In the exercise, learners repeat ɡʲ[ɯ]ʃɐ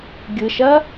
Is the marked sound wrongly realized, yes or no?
no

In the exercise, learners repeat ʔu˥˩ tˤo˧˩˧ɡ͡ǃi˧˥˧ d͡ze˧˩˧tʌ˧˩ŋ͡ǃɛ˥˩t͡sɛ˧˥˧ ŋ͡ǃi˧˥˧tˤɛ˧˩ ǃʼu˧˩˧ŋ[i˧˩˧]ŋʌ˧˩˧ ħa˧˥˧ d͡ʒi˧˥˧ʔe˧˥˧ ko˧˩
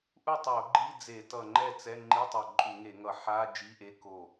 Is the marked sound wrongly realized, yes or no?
yes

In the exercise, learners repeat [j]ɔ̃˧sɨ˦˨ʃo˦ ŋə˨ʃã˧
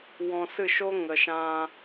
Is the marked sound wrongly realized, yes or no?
yes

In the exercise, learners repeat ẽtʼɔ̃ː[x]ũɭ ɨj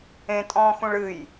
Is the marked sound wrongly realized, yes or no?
no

